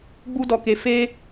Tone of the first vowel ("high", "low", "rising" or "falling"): high